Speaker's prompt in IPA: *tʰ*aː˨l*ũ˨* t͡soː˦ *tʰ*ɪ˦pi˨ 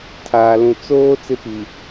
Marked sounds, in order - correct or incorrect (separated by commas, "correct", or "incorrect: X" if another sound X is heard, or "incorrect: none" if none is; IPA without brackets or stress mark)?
correct, correct, incorrect: t͡s